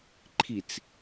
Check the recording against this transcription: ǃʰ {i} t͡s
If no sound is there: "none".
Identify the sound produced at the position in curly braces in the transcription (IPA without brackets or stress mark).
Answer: i